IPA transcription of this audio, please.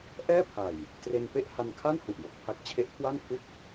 ʔɛː˥˩pʰa˨˩j | tre˧npe˥˩ʔ ha˧nkʰa˥˩nhu˨˩ʔjo˨˩k̚ pʰa˦˥k̚t͡ɕʰe˦˥ʔkʰwa˥˩npʰu˥˩k̚

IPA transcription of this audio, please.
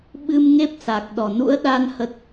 ɓɨ˧mŋe˦˥p̚sa˨˩k̚ ɗɔ˨˩nṵ˧˥ə̯ɗa˧n hə˦˥t̚

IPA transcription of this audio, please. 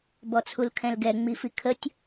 bɔt͡sʰulkʰɛ̃lɡɛ ŋ͡mifikʰətʲ

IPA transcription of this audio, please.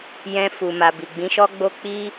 jɛ̃˧ fu˨ma˨bi˨ ɡ͡bĩ˨˦ʃɔ˦ɡ͡bo˦ k͡pi˦

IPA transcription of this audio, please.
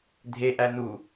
dʱeʔæ nu

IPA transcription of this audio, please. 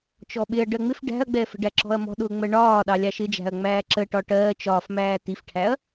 t͡ʃɔɓɪɐ̯ ɖɜŋ͡mɪf ɖæ̤ɐ̯ɡ͡bɛːfə̤ɖæ ǁɔ̤ɐ̯mɔ̤ ɗʊːŋ͡mɜɳɒː ɗɑlʲɑʃɪd͡ʒæ̤ɐ̯ ŋ͡mæːǁəʈɒ ʈɜː t͡ʃɒːfmæː tifʈʰæɐ̯

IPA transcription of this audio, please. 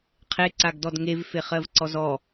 qʰeǀaɡdɔd ŋevfeχɜvǀɔz ɔ

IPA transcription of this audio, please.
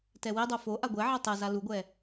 tɛwidˤo fo ʔaɡʷɛʕɛ tˤeza luɡʷɛ

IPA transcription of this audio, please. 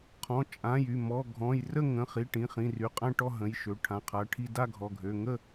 qʰɔ̃˩˧˩t͡ʃʼã˩˧˩j y˩˧˩ mɔ˩˧˩ ɡʱɔ̃˩˧˩jrə˥˧ŋə̃˩˧˩ χi˩˧˩ʈĩ˩˧˩ χĩ˩˧˩ry˩˧˩qʼã˥˧ʈɔ˥˧ ɦə̃˩˧˩jʃø˩˧˩ ʈʰã˩˧˩qʰa˩˧˩ʈʰi˥˧ da˥˧ɡʱɔ˩˧˩ɡʱø˩˧˩ ŋə˥˧

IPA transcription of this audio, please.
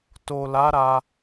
to˨la˨˦ ɾa˧

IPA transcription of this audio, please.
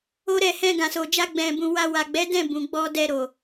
o˦ɾɛ˦˨ hɛ̃˧ɡã˨so˨d͡ʒa˧ ɡ͡bɛ̃˨ bũ˨wa˧wa˨ ɡ͡bɛ˨˦dɛ̃˦˨ bũ˨ɡ͡bɔ˧dɛ˧ɾo˨

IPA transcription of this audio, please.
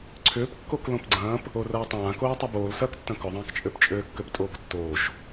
ǀʰʏːpkːok lõpɡ͡ǀɐ̃ːp | orɐːtˤãːkoː tˤoboːlsɐːktːɐ̃ kʊðˤɐ̃ːkt͡ʃʼøp t͡ʃʼøːkːøptʼoːktːoːʃ

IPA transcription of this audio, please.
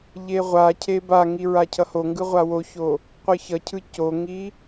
ʎeʁʷacʰe baŋi ɹacʰʌhoŋɡɯ ʁʷawoço | qʷɯçʌcʰɯ coŋi

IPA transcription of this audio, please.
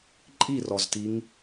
ǃʼirɔztiŋ

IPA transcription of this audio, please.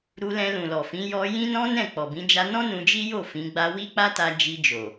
ɾu˧ lɛ̃˧lũ˨lɔ˨fĩ˨˦ jɔ˧ jĩ˦nɔ̃˦ nɛ̃˦˨k͡pɔ˨bĩ˨˦ d͡ʒa˧nɔ̃˦ nũ˧d͡ʒi˦jo˦˨ fĩ˨˦ɡ͡ba˦ wi˦k͡pa˦ ta˧ d͡ʒi˧d͡ʒo˨

